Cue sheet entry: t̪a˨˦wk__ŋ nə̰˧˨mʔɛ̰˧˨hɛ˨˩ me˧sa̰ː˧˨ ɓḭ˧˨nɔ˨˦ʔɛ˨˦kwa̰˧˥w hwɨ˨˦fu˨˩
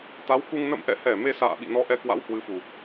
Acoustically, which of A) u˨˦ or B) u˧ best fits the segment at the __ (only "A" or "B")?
B